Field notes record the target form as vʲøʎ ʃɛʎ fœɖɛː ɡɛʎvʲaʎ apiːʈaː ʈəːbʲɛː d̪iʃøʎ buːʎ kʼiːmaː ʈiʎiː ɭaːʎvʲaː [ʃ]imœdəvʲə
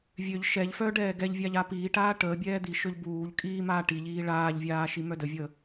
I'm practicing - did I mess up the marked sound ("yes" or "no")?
no